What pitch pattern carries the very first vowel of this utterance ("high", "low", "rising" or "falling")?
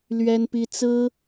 high